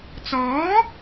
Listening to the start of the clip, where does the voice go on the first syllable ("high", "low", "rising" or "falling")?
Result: rising